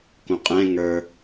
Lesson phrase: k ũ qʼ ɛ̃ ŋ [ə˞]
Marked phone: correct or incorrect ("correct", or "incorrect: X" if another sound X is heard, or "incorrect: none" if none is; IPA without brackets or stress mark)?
correct